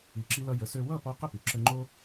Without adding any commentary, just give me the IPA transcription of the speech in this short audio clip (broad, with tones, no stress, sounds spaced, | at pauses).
i˩ ǁ i˧ l ʌ˧ j ə˩˥ s ø˧ w ʌ˥˩ p ɔ˧ q ə˥˩ p y˩˥ ǁ ə˧ ŋ͡ǃ o˥